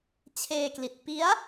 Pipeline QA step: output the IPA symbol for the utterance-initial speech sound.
t͡ɕʰ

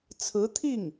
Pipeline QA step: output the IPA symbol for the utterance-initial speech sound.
t͡sʰ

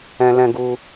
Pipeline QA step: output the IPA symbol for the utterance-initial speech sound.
ɛ̃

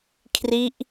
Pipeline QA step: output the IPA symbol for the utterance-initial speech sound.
kʰ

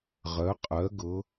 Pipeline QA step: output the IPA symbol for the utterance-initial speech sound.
ʁ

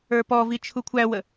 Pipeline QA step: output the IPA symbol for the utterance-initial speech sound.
ə˞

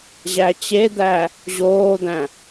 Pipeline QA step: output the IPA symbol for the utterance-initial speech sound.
ʑ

